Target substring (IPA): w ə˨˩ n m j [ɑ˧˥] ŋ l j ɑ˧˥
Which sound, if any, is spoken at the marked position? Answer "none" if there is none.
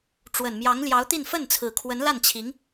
ɑ˧˥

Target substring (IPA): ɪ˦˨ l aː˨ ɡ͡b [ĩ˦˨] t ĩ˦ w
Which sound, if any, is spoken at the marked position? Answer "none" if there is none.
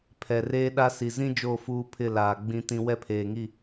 ĩ˦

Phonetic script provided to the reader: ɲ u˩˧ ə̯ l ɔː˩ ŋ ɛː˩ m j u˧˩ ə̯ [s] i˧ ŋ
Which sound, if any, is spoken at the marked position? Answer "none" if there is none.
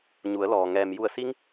s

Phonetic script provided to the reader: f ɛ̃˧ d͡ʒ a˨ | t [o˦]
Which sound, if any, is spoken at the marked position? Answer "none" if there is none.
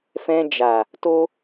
o˦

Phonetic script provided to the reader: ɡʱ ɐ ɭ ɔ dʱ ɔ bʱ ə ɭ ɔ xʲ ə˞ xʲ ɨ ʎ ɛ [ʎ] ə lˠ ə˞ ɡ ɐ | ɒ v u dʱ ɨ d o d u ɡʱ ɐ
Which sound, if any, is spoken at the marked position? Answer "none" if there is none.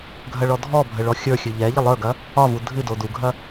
ʎ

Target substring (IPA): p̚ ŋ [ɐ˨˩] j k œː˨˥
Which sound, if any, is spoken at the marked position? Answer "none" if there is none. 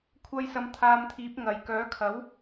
ɐ˨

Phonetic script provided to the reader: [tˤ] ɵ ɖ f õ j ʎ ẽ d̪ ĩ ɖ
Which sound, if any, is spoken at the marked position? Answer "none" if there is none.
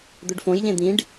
d̪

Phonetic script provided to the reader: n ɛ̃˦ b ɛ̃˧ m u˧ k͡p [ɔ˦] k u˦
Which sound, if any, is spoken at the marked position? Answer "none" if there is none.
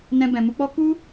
ɔ˦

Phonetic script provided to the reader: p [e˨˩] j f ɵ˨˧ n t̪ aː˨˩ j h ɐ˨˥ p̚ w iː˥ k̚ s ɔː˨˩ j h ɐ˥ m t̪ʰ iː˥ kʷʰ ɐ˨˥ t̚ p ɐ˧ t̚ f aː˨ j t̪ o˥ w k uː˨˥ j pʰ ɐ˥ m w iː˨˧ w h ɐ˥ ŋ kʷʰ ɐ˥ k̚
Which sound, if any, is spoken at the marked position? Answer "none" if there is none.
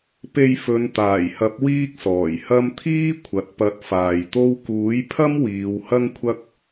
e˧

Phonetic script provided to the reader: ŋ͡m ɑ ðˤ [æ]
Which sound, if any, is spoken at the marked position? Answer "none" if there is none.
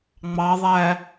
æ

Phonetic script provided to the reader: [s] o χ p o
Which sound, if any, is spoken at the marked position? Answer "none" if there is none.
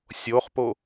sʲ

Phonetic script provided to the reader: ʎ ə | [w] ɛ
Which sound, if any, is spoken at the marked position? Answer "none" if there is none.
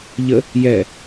j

